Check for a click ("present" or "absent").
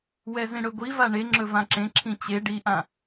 present